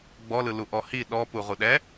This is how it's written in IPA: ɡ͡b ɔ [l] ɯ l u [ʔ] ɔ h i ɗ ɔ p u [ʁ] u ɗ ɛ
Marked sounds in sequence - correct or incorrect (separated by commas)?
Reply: correct, correct, correct